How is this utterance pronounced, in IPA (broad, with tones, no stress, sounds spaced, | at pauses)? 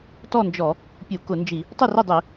t ɔ˥˨ n d͡ʒ ɔ˧˩˧ | pʲ u˧˩˧ k ʊ˧˩˧ n d͡ʒ i˧˩˧ | tˤ ʊ˥˨ r ɪ˥˨ dˤ i˧˩˧